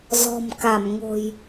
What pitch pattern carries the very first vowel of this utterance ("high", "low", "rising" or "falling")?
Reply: low